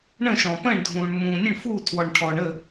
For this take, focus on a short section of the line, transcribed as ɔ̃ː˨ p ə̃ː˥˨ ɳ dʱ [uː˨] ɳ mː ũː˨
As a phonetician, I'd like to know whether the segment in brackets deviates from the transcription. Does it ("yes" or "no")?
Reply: yes